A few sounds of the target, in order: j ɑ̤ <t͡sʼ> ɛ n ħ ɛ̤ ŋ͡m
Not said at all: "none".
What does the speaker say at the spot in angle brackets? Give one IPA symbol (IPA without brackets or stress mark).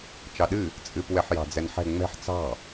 d͡z